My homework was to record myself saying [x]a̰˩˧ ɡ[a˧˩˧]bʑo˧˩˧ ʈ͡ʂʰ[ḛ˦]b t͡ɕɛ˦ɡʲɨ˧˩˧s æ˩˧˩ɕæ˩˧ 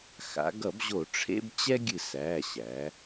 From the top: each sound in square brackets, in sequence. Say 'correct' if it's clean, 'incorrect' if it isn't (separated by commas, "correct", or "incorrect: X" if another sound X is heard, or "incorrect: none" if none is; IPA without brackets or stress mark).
correct, incorrect: ʌ˧˩˧, correct